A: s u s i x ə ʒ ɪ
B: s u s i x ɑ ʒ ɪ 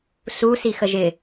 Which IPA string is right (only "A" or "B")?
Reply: A